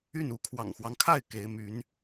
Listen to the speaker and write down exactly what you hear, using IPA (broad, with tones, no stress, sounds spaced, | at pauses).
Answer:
y˥˩ n u˧˥ kʰ w ɑ̰˨˩ ŋ x w ɑ˦ ŋ kʰ a˥˩ ɪ̯ k e˧˥ ɪ̯ m y˧˥ n